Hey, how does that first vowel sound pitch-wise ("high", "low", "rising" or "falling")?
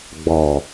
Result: low